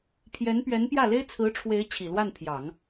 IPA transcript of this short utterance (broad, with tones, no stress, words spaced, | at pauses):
pʰjɛ˧˥npɥɛ˧˥n pjä˥˩le˥ɪ̯ t͡sʰɹ̩˧˥ʈ͡ʂʰwe˧˥ɪ̯ t͡ɕʰi˨˩lwa˥˩npʰjɑ˨˩˦ŋ